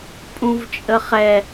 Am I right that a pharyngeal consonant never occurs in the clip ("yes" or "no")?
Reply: yes